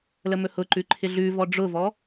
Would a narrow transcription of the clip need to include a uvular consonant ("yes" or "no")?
no